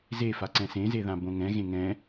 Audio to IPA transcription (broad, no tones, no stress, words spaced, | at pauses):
zefaǀɛ̃ sẽzeðã bõŋɛ̃ ɣẽŋɛ̃